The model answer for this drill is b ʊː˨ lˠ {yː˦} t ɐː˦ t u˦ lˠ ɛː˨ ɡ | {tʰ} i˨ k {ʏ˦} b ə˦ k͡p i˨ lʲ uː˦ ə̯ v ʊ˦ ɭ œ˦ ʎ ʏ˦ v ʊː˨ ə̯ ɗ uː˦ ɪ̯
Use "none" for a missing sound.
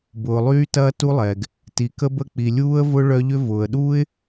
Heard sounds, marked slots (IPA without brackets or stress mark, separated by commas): yː˦, t, ə˦